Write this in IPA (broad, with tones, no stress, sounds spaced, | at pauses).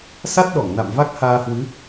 s a˦˥ t̚ ɗ ɔ˧˩ ŋ n a̰˧˨ m v a˦˥ k̚ h aː˧ h w ɨ˨˦